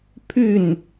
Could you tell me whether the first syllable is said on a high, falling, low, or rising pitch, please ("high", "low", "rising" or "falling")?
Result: falling